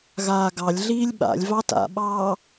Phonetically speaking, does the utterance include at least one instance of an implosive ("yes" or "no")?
yes